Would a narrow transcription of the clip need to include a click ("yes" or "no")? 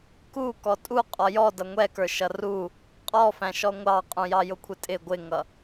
no